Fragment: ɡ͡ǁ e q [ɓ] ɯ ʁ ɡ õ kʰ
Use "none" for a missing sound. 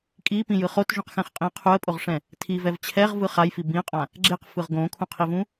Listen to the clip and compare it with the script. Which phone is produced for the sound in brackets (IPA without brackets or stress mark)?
f